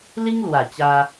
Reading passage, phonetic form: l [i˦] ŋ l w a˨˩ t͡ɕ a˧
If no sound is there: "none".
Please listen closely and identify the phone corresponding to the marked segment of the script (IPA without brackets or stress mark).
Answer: i˦